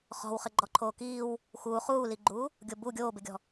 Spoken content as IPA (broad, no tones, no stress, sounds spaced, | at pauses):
χ ɔ̤ w χ ɪ ɡ͡ǃ ɔ ǃʰ oː k iː w | x uː χ uː l i ɡ͡ǃ uː | ɡʲ o b u ɡʲ oː b ɪ ɡʲ ɔ̤